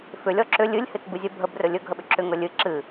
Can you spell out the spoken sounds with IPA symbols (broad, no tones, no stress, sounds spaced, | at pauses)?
f ʏ lʲ ɔ ǁ ʏ lʲ ɨ lʲ h ɨ t b ɨ zʲ ə bʱ ə b r ɵ lʲ ɵ ɡʱ ə ɓ ʏ ǁʰ ʏ ŋ ɵ lʲ ɨ ǁ ɨ